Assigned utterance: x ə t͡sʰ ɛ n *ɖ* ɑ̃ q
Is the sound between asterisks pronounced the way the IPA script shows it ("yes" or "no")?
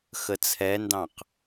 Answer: no